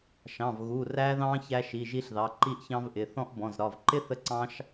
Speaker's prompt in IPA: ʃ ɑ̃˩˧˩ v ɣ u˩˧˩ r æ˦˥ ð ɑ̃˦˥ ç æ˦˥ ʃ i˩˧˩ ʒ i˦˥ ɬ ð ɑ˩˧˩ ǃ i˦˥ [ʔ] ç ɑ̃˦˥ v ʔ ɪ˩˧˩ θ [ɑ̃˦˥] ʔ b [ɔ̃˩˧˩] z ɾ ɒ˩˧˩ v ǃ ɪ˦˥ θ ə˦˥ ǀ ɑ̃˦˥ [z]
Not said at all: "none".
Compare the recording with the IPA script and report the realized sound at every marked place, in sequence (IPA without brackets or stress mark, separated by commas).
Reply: ʔ, ɔ̃˦˥, ɔ̃˩˧˩, ʃ